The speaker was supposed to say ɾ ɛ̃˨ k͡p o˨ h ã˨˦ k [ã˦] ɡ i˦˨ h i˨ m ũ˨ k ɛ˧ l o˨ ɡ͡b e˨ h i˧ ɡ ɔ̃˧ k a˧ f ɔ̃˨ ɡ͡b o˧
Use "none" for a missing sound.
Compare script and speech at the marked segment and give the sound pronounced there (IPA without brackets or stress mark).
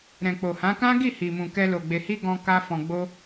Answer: ã˦